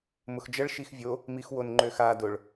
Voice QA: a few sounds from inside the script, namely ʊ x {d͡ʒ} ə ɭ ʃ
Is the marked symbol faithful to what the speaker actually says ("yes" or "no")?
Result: yes